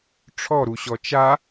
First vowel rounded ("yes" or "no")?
yes